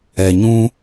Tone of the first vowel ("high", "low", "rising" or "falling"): low